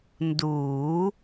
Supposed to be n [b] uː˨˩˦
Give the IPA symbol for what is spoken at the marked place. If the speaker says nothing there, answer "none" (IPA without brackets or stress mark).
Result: d